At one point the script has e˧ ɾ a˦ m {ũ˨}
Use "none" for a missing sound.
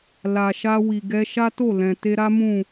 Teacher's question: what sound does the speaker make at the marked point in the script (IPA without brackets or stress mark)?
ũ˦˨